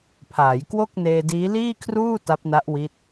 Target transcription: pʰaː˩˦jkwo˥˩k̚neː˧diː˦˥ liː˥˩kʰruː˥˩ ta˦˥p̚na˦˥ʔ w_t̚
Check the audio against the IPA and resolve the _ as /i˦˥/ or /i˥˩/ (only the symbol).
i˦˥